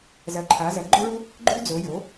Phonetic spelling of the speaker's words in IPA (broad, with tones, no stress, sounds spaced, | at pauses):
z ɐ˩˥ ǃʰ a˩˥ z ɐ˩˥ ɡ͡ǃ ɵ˥ ɭ u˥ | ɡ͡ǃ ʉ˥ d͡z o˩˥ j o˩˥